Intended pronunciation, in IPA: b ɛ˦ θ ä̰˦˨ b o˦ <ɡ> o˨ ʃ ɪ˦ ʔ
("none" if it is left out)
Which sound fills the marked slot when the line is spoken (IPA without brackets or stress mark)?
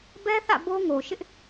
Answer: ŋ